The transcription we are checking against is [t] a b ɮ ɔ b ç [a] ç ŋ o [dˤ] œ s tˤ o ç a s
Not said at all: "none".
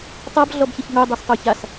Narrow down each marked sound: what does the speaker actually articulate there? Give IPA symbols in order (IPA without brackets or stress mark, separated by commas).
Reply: tˤ, ə, dˤ